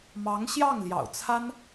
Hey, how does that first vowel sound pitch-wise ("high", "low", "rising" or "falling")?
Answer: rising